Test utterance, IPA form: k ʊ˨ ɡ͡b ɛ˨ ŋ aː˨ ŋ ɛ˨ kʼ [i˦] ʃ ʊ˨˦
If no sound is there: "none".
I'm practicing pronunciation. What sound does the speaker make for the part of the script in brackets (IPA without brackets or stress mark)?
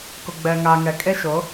e˦